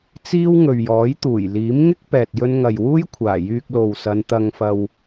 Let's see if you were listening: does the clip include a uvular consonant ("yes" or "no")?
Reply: no